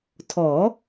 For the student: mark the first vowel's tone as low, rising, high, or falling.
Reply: rising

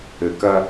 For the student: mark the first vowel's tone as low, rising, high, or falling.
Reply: low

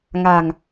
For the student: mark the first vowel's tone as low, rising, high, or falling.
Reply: low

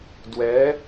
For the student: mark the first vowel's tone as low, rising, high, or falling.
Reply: rising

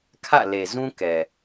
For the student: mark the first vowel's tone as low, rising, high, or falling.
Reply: falling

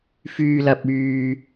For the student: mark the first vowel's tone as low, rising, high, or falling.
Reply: low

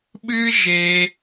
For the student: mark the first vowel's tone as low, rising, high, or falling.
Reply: high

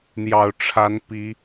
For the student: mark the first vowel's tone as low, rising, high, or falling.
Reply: low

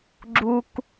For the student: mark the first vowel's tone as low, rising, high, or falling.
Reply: low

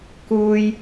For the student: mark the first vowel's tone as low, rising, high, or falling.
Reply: high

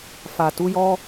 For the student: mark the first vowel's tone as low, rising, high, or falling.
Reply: low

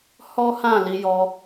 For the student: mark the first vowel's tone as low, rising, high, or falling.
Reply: high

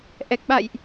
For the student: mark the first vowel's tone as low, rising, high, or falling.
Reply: low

